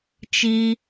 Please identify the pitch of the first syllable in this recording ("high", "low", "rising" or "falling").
high